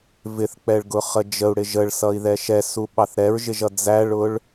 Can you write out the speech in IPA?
vɪθk͡pɛɭɡʊχə d͡ʒəu̯ɽɪ ʒəɭsʌi̯ðɛ ʃɛsuɓɑθ ɾɛɹʒɪʒʌ d͡zæɭʊɭ

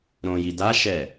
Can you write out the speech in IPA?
ɾõjid̪aʃɛ

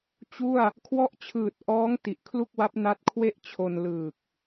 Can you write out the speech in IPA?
t͡ɕu˥˩a̯ | kʰwɔ˦˥ʔt͡ɕʰɯː˨˩t̚ʔɔː˦˥ŋ ti˨˩ʔkʰlu˥˩k̚wa˦˥p̚ na˦˥t̚kʰwe˥˩ʔ t͡ɕʰo˧nlɯː˨˩k̚

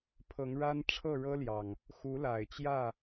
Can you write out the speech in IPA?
pʰɤ˨˦ŋ ɻa˦n ʈ͡ʂʰɤ˥˨ɻɤ˦ljɑ˨˩ŋ | xu˨˦la˨˩ɪ̯t͡ɕjä˥˨

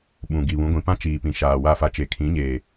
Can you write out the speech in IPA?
ɓũ˨ ɡi˨βũ˨˦ɡʷĩ˨ pã˦ t͡ʃiː˨pĩ˨ʃaː˨ wa˦˨fa˦ t͡ʃe˨kʰĩ˨˦ɲeː˨

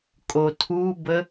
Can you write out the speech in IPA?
kʼotʰubə

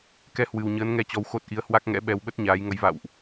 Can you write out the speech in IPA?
kɛ˧ hwɨ˨˩wɲəː˨˦nŋɛ˧t͡ɕɔ˨˦w xo˦˥t̚ ʔi˨˦ə̯hwa˦˥k̚ŋɛ̰˧˥ ɓɛ˧wɓə˦˥t̚ɲaː˨˦j ŋə˨˦jva̰˧˨wʔ

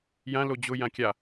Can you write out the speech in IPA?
jã lod͡ʑʊ jãkʲa

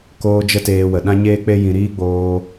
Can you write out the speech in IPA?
koː˧ d͡ʒə˦teː˧wə˨ ɗã˦ɲeː˦k͡pe˦ jĩ˦ ɾiː˦ɡ͡boː˧

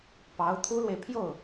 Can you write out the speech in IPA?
pɑ˧˥ʊ̯ t̪ʰu˥lwe˨ɪ̯ pʰjo˥˩ʊ̯

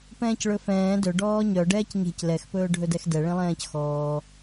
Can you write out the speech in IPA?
pɛ̃ːcɭɵfɛ̃ː dɵ ɖɔːɲœ ɖɛːcɲe̤c lɛx pɵːɖʱɵdɛxdɛ ɭẽlˠɛ̃ːcxɔː

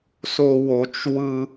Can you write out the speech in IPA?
so˨ wo˨t͡ʃ wɯ˦

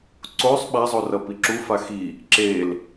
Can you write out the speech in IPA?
ǀosˤ ɓa zˤorʌpiǁu faxi | ǁel

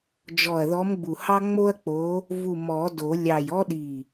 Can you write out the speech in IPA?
d͡ʒɔ˧˩ɐ̯ðɔ˧˥mɡ͡bu˧˩hɑ˥ ŋ͡mo˥ɐ̯k͡po˧˥ | vu˧˩mɔ˨˩˦do˨˩˦ lʲɑ˧˩jɔ˥ɗi˧˩

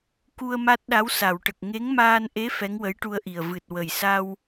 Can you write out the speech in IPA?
ku˧ə̯ ma˦˥t̚ɗa˧˥wsa˨˩˨wʈə˨˩k̚ ŋe˧˥ŋmaː˧nʔe˧˥ fɛ˧˥ŋwə˧˥jʈu˧ə̯ʔi˨˩ə̯ vɨ˨˩t̚ wə˨˩jsa˧w

